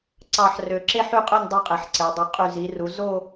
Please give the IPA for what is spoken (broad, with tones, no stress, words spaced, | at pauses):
ǀɑ˥˧ħrø˧ ǁe˥ħy˥˧qʼø˥˧nʲ dˤo˥qʼe˩˧ħǀe˩˧dˤy˩˧ qʼy˧˩zi˩˧ru˩˧ zo˥˧